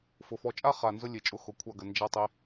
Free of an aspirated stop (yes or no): no